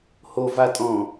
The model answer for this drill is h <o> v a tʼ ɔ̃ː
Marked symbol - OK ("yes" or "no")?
yes